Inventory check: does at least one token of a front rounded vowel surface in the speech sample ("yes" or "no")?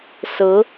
no